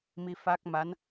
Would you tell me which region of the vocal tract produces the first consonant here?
lips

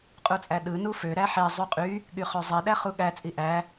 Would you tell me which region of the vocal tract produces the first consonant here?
uvula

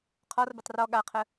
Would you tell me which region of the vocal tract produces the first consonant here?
uvula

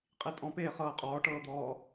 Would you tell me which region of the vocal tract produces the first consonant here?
uvula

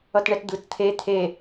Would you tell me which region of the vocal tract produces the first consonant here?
tongue tip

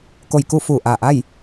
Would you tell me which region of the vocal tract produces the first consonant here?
velum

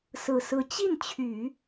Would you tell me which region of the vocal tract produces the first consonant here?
tongue tip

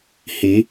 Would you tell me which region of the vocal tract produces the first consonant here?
throat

